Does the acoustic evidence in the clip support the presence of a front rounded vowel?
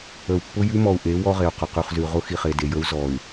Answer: yes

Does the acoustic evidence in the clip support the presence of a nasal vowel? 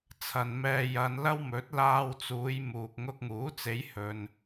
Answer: no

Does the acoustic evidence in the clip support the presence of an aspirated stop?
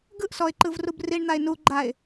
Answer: no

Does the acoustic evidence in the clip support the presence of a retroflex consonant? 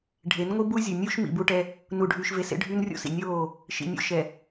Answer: yes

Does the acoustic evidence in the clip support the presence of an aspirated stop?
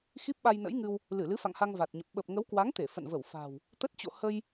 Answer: no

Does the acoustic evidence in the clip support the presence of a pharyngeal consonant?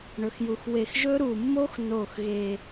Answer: no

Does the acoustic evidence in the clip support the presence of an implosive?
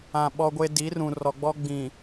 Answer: yes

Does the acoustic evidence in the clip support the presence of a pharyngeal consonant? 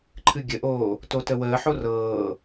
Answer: yes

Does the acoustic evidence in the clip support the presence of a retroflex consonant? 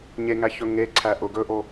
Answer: no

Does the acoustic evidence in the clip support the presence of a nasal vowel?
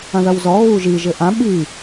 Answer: yes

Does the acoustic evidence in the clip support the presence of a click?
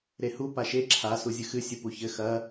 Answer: yes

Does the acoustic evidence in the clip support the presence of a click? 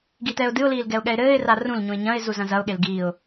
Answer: no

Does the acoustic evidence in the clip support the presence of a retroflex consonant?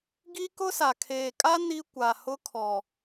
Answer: no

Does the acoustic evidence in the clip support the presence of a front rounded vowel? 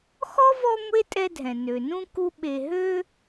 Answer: yes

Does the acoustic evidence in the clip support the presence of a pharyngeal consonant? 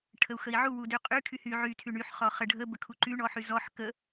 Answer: yes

